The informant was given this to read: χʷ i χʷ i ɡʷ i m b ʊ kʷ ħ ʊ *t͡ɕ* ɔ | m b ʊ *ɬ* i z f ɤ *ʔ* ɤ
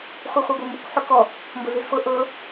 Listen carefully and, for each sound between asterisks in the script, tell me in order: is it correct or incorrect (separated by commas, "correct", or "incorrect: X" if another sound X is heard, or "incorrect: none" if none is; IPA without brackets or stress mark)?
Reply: incorrect: k, incorrect: z, correct